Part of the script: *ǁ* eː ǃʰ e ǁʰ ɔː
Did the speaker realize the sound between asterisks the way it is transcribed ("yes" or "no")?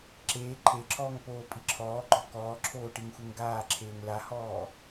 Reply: yes